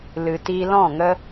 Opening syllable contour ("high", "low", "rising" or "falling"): low